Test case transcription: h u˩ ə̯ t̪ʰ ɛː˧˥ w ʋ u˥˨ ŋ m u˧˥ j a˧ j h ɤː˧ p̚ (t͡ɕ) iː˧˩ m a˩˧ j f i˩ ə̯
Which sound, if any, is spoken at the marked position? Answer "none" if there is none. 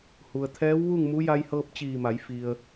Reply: t͡ɕ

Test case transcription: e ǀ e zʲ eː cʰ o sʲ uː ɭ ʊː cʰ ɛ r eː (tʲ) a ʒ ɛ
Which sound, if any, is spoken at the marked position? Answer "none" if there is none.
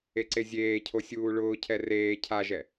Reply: cʰ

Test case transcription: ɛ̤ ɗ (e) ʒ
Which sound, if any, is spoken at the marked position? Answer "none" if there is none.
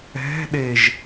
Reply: e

